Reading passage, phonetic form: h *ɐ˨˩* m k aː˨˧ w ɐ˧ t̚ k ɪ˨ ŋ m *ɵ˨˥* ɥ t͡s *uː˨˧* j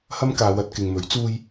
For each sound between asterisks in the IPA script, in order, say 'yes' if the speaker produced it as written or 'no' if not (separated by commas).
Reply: no, yes, no